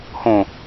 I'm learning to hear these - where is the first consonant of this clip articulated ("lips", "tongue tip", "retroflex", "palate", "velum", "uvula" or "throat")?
throat